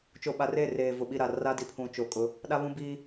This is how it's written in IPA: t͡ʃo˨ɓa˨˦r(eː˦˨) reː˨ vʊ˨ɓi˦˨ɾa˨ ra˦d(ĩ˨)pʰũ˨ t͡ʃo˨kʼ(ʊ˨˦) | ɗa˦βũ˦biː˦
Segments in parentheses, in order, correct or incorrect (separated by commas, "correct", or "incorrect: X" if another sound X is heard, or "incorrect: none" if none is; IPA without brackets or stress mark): correct, incorrect: i˨, correct